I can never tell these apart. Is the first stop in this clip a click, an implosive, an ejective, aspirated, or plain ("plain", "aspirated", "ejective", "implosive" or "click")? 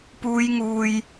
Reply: plain